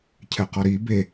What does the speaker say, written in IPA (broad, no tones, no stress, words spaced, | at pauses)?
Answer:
cʰɛqɔɾi be